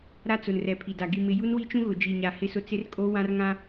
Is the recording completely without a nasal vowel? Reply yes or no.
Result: no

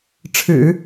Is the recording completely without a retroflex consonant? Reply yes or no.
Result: no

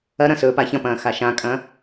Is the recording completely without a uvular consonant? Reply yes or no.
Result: yes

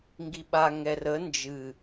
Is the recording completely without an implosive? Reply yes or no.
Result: no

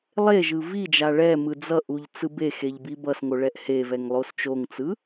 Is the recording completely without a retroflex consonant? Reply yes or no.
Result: no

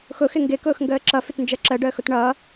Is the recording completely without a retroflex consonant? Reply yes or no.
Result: no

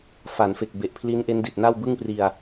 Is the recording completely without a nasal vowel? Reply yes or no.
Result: yes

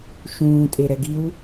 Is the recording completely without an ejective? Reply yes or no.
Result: no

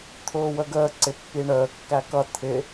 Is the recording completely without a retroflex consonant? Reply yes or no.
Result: no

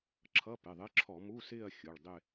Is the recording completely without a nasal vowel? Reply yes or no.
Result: yes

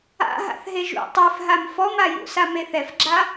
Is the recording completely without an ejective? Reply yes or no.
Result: yes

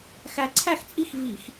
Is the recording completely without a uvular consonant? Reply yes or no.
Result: yes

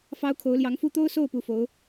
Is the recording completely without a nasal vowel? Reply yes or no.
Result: yes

